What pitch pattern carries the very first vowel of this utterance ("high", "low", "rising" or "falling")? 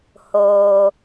low